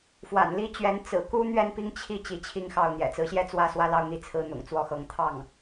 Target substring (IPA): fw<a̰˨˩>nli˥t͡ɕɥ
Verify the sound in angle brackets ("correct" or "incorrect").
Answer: correct